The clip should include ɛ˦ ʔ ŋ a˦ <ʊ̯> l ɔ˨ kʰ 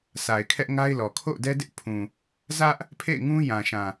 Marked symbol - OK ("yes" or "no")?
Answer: no